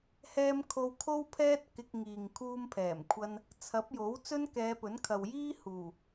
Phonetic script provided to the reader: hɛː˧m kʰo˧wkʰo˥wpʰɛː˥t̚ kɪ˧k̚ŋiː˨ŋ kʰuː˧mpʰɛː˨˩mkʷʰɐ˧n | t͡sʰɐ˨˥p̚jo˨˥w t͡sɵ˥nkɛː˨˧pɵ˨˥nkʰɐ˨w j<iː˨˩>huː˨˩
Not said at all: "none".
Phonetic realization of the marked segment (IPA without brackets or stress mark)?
iː˥